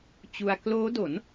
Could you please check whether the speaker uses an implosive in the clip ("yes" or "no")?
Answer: no